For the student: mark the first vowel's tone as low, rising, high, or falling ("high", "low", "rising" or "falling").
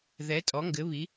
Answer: rising